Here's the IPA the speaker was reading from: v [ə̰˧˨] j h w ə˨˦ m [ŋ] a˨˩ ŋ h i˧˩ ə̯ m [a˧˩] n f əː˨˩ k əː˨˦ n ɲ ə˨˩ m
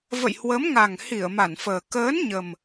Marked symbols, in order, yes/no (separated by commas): yes, yes, yes